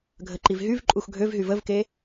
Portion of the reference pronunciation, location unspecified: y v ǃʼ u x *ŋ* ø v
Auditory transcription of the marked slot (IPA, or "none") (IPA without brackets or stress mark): ɡʱ